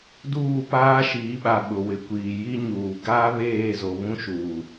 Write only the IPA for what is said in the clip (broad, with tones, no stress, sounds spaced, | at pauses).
d uː˦˨ p aː˦ ʃ iː˨˦ ɓ a˨ ɓ ʊ˨ w ɪ˨ kʷ iː˨ j i˦ ɲ uː˨ ɡ aː˦ β eː˦˨ z o˨ β ũ˦ ʃ uː˨